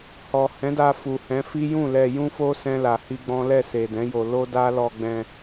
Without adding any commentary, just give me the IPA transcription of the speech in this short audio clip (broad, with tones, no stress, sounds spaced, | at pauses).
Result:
h ɔ˨ h ɛ̃˨˦ d a˧ f u˨ h ɛ̃˨˦ f i˦ j ũ˦˨ l ɛ˧ j ũ˦ f o˦ s ɛ̃˦ l a˧ h i˦ ɡ͡b ɔ̃˦ l ɛ˦˨ s e˨ d ɛ̃˨˦ j o˧ l o˦ d a˦ l ɔ˧ ɡ͡b ɛ̃˧